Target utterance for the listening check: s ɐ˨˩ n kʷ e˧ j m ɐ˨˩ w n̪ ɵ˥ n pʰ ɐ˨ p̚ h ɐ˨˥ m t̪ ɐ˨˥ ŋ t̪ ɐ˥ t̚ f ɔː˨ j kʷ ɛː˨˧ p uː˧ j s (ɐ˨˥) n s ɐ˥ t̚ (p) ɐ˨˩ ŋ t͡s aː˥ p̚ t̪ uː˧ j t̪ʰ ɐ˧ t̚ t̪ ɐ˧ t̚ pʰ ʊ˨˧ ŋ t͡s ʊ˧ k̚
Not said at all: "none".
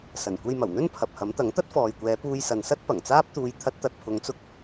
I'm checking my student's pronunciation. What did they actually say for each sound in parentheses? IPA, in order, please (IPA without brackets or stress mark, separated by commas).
ɐ˨, p